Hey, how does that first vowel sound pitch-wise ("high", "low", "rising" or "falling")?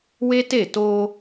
high